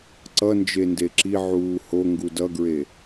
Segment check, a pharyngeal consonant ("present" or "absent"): present